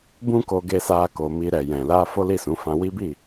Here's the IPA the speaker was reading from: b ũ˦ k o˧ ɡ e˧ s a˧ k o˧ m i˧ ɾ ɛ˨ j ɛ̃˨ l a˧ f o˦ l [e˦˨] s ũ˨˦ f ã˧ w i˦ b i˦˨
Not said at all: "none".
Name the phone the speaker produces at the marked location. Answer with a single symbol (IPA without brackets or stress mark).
i˦˨